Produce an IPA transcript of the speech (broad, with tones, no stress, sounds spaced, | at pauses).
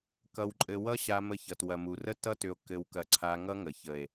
k ʌ˧ w ǃʼ ɘ˧ w ʌ˦ ɕ a˧ m ə˧ ç ʌ˨ t w ɐ˨ m u˨ r ə˦ t ʌ˦ t ʏ˧ o̯ k ɘ˧ w k ɐ˧ ǀʰ a˧ ŋ ʌ˦ ŋ ə˨ ç ə˨ e̯